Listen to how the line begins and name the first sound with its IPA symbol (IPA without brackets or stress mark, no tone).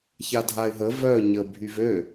ç